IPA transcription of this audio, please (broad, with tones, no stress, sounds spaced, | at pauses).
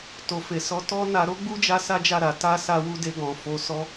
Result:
t o˨ f e˨ s ɔ˨˦ t ɔ˦ n a˧ ɾ o˦ ɡ͡b u˦ d͡ʒ a˧ s a˦ d͡ʒ a˦˨ ɾ a˨ t a˧ s a˦ w u˦ d e˧ ɡ ɔ̃˨ f o˨˦ s ɔ˦